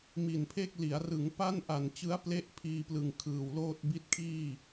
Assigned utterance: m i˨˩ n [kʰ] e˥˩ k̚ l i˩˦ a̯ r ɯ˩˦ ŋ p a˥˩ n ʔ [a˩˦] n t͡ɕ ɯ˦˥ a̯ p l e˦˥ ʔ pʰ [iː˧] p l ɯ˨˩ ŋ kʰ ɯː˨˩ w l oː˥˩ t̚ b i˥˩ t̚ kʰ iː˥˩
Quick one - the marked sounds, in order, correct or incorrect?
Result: incorrect: pʰ, incorrect: a˨˩, correct

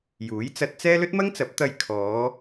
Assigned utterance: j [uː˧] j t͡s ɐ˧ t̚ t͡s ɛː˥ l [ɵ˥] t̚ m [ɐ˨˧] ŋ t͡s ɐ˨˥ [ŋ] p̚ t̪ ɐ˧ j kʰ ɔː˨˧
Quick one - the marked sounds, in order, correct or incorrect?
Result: incorrect: uː˨˥, correct, incorrect: ɐ˥, incorrect: none

